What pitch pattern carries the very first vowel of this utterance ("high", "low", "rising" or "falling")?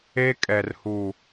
high